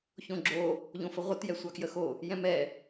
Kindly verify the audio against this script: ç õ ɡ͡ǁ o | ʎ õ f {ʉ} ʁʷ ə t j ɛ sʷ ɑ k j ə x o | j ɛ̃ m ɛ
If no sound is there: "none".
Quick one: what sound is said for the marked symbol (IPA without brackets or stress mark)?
ə